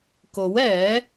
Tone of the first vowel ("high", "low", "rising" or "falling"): rising